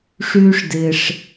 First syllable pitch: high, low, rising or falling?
high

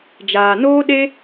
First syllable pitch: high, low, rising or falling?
low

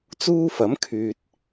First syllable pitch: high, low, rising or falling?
high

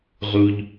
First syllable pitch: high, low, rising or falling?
high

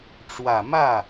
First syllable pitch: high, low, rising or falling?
low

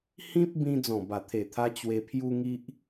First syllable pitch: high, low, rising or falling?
high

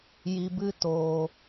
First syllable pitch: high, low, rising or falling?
low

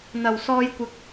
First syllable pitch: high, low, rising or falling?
low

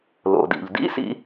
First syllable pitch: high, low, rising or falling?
low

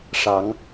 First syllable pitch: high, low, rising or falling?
rising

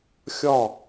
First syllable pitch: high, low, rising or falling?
falling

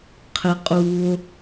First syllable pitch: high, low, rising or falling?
high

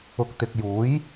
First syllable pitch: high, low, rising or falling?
low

